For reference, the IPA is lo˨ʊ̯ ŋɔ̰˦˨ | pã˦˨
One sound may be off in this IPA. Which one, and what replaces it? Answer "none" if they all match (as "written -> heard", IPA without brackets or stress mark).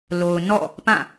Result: ŋ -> n